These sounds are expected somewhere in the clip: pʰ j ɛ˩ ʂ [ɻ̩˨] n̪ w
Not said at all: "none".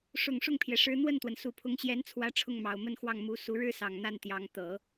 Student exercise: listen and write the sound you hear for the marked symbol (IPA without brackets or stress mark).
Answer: ɻ̩˧˥